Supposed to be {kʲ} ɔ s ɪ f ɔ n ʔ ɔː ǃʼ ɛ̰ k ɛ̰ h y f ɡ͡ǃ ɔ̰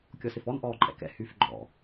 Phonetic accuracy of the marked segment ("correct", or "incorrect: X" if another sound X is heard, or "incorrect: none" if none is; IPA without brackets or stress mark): correct